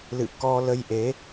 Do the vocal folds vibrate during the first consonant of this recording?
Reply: yes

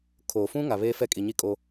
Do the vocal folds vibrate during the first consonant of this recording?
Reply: no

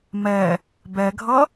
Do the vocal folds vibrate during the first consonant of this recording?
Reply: yes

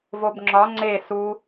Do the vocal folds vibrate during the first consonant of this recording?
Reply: yes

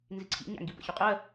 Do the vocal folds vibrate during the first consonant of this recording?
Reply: yes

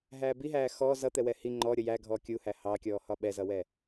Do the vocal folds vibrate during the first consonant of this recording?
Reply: yes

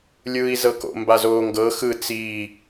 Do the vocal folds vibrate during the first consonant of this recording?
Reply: yes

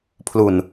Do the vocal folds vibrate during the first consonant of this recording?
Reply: no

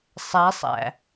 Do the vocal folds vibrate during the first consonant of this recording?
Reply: no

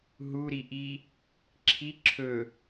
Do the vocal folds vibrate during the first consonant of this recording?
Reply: yes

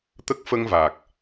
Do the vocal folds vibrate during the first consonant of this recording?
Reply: no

